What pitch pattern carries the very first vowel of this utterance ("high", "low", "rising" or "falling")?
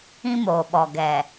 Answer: high